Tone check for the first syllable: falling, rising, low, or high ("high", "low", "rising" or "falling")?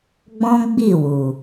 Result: high